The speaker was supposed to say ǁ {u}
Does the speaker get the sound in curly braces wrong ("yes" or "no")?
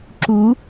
no